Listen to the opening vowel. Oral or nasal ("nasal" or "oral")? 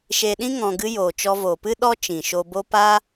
oral